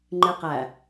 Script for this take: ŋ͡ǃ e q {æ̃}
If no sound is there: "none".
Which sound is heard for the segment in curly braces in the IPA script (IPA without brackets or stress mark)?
æ